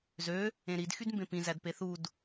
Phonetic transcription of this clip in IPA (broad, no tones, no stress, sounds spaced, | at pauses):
z ø | ẽ ɾ i d x y d m b ẽ p ĩ z æ d p e θ u d